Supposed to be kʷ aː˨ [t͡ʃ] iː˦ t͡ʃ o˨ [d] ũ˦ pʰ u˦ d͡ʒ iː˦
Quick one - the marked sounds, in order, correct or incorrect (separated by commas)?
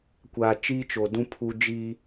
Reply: correct, correct